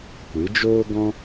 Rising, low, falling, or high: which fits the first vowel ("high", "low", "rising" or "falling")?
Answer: rising